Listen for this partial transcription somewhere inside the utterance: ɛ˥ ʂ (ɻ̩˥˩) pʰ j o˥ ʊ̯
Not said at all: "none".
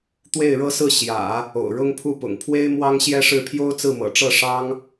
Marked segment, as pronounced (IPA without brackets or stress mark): ɻ̩˥˩